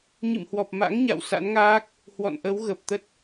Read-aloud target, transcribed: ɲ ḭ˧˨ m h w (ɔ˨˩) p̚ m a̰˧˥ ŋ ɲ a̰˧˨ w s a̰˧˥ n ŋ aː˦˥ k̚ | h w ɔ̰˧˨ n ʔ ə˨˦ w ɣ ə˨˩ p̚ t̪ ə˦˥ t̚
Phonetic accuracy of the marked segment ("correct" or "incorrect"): correct